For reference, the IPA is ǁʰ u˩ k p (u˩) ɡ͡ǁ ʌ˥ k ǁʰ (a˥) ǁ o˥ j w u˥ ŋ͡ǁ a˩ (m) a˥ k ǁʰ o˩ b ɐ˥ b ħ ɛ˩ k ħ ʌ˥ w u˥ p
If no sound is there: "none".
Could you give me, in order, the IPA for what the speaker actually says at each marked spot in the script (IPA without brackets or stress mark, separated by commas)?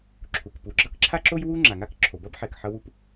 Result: u˩, a˥, ŋ